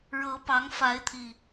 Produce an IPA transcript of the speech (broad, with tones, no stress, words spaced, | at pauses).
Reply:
ɻɤ˨˦pɑ˨˦ŋ fa˨˦ɪ̯t̪ʰi˨˩